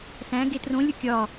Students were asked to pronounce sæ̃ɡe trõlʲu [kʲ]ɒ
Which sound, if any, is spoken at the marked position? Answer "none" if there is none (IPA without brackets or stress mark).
kʲ